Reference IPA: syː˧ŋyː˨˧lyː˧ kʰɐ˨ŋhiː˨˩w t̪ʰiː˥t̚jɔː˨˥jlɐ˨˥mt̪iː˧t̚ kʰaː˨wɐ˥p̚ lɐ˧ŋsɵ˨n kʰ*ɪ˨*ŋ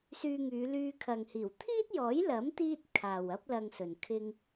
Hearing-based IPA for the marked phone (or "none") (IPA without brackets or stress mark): ɪ˧